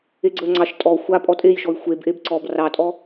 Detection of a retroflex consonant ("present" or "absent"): absent